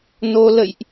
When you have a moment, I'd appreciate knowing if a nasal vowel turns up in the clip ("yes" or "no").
no